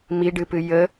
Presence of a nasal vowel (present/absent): absent